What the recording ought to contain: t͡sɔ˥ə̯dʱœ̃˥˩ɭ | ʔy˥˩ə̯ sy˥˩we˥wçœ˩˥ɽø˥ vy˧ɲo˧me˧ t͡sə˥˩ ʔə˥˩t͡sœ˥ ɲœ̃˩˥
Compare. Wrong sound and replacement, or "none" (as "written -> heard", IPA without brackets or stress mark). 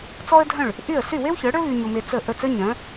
none